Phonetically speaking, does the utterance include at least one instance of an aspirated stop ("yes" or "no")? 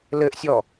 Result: no